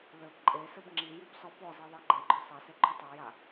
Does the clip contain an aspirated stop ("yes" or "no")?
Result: no